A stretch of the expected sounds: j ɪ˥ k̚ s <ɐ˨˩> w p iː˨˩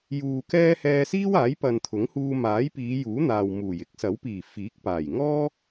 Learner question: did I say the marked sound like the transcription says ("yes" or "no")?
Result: no